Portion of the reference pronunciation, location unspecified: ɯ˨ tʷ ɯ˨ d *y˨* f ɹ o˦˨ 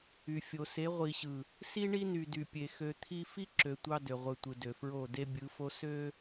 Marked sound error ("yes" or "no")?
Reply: yes